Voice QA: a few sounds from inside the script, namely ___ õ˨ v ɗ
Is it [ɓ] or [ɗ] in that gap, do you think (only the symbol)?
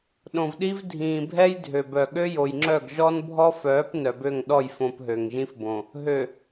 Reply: ɗ